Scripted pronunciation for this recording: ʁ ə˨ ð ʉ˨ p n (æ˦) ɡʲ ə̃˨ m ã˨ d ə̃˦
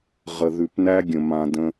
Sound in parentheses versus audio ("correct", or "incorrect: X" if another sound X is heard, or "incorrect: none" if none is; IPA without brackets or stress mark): correct